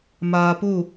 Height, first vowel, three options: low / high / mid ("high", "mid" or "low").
low